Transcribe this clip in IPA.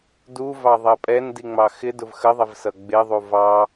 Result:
d u v ɑ ðˤ ɜ pʼ ɛ n d i ŋ͡m ɑ x ɪ d ʊ v x ə ðˤ ɪ v s ʌ ɡ͡b ɪ ðˤ u v ɑ

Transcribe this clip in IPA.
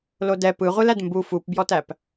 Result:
l o d ɛ p ɯ ʁʷ ɯ l æ d m b u f u p b j ɔ t æ p

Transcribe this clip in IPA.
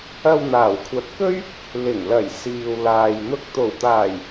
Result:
ɐ˧ w n̪ aː˨˩ w kʷʰ ɐ˨˥ t̚ k ɵ˥ ɥ | l ɪ˨˩ ŋ l ɐ˨˩ j s iː˨ w l aː˨ j n̪ ʊ˧ k̚ t̪ o˨˩ w t̪ aː˨˩ j

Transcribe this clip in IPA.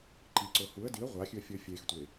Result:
ǃ i ǀ o h u ə̯ d i ə̯ ʁʷ a xʲ ʉ ə̯ fʲ ɵ fʲ e x tʷ e

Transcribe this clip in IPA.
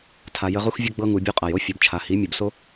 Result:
tʰ a˨ j ə˧ ʁ u˦ x vʲ ə˦ ɡ͡b ɤ˧ ŋ u˨ bʲ u˧ qʼ a˨ j o˦ fʲ ɔ˨ b t͡ʃʰ a˨ h i˨˦ mʲ u˨ b s o˦

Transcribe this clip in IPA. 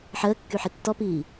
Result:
ħ əː kː y ħ i tː ɔ p iː

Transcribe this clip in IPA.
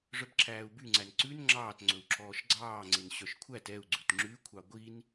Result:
ʐ œ b ǁʰ æː u̯ b y ŋ͡ǀ æ n ǀ ʉ n ŋ͡ǁ ɑː t ŋ͡ǀ ɵ u̯ ǁʰ ɔː ʃ ɡ͡ǀ ɑː ŋ͡ǀ e n ɕ œ ʃ kʷʰ æ t ɛ u̯ ɡ͡ǀ ʉ t ŋ͡ǁ ʉ kʷʰ ɑ ɡʷ i n

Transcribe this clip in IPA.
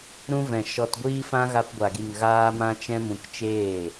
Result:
ɾ ũ˧ v ɛ̃˨ ʃ ɔ˧ t ɡʷ iː˦ f ã˦ ɣ a˧ p ɡʷ a˨ ɡ i˨ ŋ ɣ aː˧ m ã˧ t͡ʃ ɛ̃˧ m ũ˧ k t͡ʃ eː˦˨

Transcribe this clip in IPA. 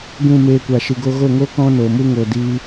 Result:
ɡ ũ˦˨ m eː˧ kʷ a˨ ʃ ɨ˨ ɡ o˧ ɣ o˦˨ ŋ o˦ k ɔ̃˦ n o˨ m u˦ ŋ o˨ d i˧

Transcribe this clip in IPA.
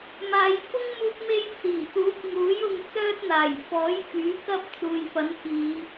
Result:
m aː˨˧ j f ʊ˥ ŋ m uː˧ k̚ m e˧ j t͡s iː˨˩ t̪ uː˨˥ p̚ ŋ uː˨˥ j ʊ˧ ŋ t͡s œː˥ t̚ n̪ aː˨˩ j f ɔː˨˥ j f yː˨˥ k ɐ˧ p̚ t͡s uː˨ j f ɐ˨˥ n k iː˨˧

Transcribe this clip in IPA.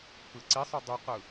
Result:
p ɯ ǀ i sˤ o dˤ u q ɯ

